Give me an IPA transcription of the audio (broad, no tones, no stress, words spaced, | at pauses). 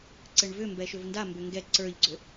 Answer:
ǀɘɳvʏ mbɛʃʏvnda mbʏŋɡɛ ǀə˞ʎɡ͡ǀʏ